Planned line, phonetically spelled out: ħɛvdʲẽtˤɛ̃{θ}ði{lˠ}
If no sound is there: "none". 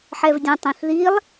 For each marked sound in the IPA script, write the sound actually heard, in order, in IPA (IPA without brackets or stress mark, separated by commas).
θ, lˠ